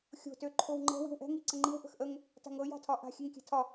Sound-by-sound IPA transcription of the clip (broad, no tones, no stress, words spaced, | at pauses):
xʲo̤ tøǃʰowŋ͡ǃɛ̤ wi̤wʔɛ̤ ŋiǀəŋ͡ǃiw ʔə̤xʔəŋ | ta̤ŋɤ ja̤tʰɒʔa̤ xʲɛŋkʲɛ̤tʰɒ